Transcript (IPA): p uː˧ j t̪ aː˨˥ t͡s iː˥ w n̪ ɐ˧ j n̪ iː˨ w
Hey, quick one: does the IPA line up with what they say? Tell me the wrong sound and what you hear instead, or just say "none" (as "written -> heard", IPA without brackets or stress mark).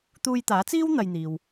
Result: p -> t̪